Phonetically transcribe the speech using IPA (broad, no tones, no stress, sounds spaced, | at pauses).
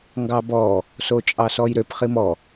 ŋ ɡ ɑ b ɔ | s o t͡ʃʼ ɑ s ɔ j ɾ ø p χ i m ɔ